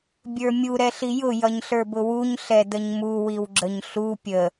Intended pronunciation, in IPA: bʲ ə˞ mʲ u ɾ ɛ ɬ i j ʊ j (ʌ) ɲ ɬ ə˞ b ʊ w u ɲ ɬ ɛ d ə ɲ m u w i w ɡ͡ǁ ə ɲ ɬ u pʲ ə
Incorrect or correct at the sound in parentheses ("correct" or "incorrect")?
correct